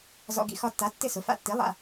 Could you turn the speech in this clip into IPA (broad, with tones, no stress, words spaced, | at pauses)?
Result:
zɔ̰˧ɡḭ˧ xɒ˧tːa˩˥ tːɪ˥˩sʊ˩˥ fa̰˧tːi˩˥ lˠa̰˧